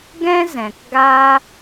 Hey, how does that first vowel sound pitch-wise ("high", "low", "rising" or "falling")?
high